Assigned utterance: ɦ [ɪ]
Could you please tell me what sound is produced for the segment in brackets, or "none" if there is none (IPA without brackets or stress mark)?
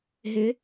ɪ